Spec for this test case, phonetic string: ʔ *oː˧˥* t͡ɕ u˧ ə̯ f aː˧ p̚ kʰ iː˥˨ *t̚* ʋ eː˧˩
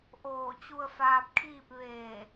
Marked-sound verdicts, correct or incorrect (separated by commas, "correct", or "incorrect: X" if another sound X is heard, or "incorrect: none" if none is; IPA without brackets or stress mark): incorrect: oː˧˩, incorrect: p̚